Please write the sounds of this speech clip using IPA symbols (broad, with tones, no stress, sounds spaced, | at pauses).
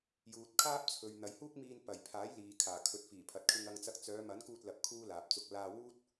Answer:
j uː˨ t̚ kʰ aː˥ p̚ t͡sʰ ɵ˨ ɥ n̪ ɐ˨ j h uː˥ k̚ m iː˧ n p ɐ˨˩ j pʰ aː˨˥ j l iː˨ kʰ aː˨˩ kʰ ɵ˨˥ t̚ f iː˨˩ pʰ ɐ˨ t̚ kʰ ɪ˧ ŋ ɐ˧ ŋ t͡s ɐ˧ k̚ t͡s œː˨˧ m ɐ˨˥ n k uː˧ t̚ l ɐ˧ p̚ kʰ uː˥ l aː˨ p̚ t͡s ʊ˧ k̚ l aː˧ w uː˥ t̚